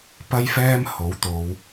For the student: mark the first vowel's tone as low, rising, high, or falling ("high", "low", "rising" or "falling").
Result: high